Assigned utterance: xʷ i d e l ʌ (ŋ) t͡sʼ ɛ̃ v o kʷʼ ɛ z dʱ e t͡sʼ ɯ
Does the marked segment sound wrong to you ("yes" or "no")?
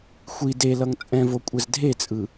no